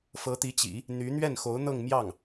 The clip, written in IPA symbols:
f ɤ˧˥ t̪ i˧˥ t͡ɕ ḭ˨˩˦ | n̪ y˧˥ n̪ ɥ ɛ˥˩ n x o˧˥ ʊ̯ n̪ ɤ˥˧ ŋ m j ɑ˥˩ ŋ

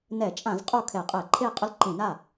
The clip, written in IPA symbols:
n ɛ˧˩˧ t͡ʃʼ ã˧˩˧ z qʼ o˥˩ kʰ ɛ˧˩˧ qʼ ɛ˧˩˧ ǃʰ e˥˩ qʼ ʊ˥˩ l ǃ ĩ˧˩˧ n a˥˩

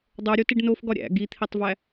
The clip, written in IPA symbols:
dˤ o ɾʲ o t i ɖ n o f ɡ ɒ ɾʲ æ̰ ɡ i t̪ʰ i tˤ v æ

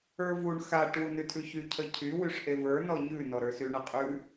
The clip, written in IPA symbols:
ə˞ v u ɳ x a ʈ w u n ʉ tʰ ʉ ç y cʰ ə cʰ y w y ʂ ʔ e v ə˞ n ɔ ɲ ʉ n ɔ ɾ ə˞ s y ɳ ə qʼ ʉ

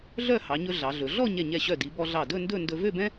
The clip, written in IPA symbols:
ɮ œ˥˧ h ɑ˩˧ ɲ ɵ˧ ɮ ɑ˩˧ ɮ ɵ˩˧ ɮ ɔ˥˧ ɲ ɛ˧˩ ɲ ɛ˧˩ ɕ œ˧˩ d i˩˧ b ɔ˧ ɮ ɑ˧˩ d ɵ˥˧ n d ɵ˥˧ n d ɵ˧ v ø˥˧ b ɛ̃˥

